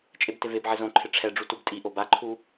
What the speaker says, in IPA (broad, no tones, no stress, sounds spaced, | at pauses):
t͡ʃʼ e b t ɪ v e b ʕ ɪ z õ ǃʰ ɪ ʈ͡ʂʰ ɛ ɖ͡ʐ u t u b tʼ i ʔ o b a ǃʰ u